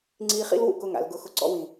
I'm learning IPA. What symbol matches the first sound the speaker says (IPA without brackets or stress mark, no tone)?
ŋ͡ǀ